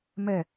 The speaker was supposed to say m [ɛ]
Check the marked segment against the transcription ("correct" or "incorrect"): correct